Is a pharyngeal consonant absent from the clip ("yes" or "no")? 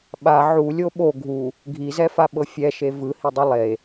no